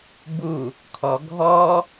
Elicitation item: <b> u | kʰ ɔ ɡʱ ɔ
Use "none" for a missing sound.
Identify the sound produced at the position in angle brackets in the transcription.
b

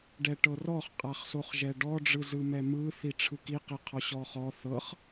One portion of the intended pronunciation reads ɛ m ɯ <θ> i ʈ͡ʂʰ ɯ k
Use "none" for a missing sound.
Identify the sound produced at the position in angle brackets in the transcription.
θ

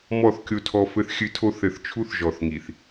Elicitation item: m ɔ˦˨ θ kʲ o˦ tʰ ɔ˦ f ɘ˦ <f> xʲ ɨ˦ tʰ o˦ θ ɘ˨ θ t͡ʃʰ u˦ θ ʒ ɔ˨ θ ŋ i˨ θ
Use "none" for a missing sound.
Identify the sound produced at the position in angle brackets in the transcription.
θ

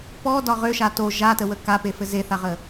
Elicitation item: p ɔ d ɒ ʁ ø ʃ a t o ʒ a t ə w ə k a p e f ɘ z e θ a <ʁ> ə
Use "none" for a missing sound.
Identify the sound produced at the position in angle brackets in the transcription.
ʁ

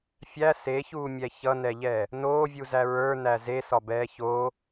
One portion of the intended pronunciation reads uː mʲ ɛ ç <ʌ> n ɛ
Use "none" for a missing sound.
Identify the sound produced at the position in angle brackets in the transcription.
ʌ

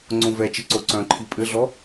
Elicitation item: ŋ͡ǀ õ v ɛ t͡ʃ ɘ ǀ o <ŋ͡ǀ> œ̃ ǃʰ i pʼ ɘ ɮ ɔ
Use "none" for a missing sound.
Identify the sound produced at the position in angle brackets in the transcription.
ǀ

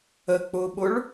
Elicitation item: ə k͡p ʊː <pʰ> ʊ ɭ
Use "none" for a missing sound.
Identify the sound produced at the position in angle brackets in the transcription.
ɓ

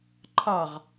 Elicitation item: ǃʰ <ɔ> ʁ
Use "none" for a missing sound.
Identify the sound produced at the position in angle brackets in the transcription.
ɑ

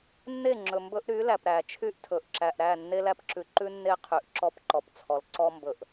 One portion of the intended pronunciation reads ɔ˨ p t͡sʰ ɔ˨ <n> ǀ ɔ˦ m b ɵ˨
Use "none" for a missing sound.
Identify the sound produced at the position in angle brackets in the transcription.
l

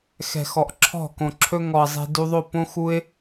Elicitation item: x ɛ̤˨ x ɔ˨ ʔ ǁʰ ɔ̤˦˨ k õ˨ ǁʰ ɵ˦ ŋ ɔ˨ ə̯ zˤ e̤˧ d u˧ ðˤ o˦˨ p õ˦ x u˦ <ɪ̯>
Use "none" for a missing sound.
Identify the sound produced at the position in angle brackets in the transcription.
ɪ̯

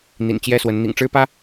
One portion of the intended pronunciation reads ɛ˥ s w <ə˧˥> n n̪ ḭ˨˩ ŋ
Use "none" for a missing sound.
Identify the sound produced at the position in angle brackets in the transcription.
ə˧˥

